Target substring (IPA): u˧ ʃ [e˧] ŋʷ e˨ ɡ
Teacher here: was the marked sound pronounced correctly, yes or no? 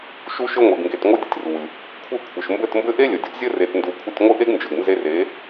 no